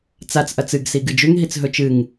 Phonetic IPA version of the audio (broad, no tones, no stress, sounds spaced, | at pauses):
t͡s a t͡s ʔ ɐ t͡s ɨ ɡ s i ɡ ɨ d͡ʒ ʉ ŋ ɦ i t͡s ɦ ɵ t͡ʃ ɨ ŋ